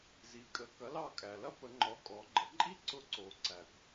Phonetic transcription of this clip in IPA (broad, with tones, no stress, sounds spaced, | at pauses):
z i˩˧ kʼ ə˩˧ k ɐ˩˥ l ɑ˦˨ kʼ æ˩ l ɐ˥ p ə˩˧ ŋ͡ǃ ɔ˩˥ kʼ ɔ˩˧ ɡ͡ǃ ə˩˥ ǃʼ i˥ ǀ ʊ˧˥ ǀ o˩˧ ǀ æ˩ kʷ